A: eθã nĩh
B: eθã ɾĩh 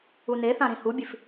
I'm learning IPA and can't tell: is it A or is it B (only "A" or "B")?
B